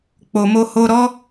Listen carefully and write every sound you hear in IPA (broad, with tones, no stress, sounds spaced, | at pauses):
k͡p o˨ m o˧ h o˧ ɾ ɔ˦